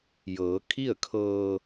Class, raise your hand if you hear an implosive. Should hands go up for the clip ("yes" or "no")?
no